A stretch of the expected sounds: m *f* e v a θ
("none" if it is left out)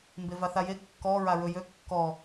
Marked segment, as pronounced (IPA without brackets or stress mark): b